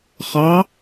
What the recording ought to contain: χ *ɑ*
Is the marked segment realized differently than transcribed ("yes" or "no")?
no